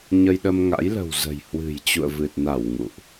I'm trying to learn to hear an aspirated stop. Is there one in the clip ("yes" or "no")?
no